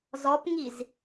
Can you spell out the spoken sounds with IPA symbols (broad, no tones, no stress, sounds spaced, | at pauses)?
z ɔ p ŋ i z